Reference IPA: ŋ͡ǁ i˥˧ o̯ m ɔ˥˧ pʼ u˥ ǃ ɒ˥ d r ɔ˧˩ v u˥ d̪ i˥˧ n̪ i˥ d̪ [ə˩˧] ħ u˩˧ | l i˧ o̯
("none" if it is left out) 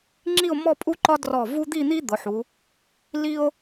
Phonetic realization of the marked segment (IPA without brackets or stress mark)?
ʊ˩˧